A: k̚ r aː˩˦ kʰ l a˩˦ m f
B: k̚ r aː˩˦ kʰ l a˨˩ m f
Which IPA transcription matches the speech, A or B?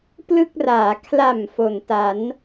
B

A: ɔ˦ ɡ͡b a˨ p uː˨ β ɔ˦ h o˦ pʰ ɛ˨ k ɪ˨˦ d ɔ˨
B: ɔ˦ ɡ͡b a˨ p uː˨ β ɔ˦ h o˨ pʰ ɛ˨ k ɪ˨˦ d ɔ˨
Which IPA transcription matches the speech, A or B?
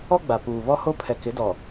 A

